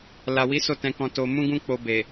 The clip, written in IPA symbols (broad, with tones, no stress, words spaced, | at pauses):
la˨wi˨˦ so˦˨tɛ̃˧kɔ̃˧ to˧ mũ˦ɡũ˦k͡po˧ be˨